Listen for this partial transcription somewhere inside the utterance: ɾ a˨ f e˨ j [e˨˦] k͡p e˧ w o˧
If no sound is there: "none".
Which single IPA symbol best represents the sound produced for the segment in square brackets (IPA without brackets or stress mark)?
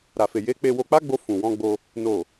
e˨˦